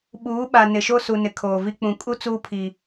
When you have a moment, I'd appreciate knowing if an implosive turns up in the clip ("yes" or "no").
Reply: yes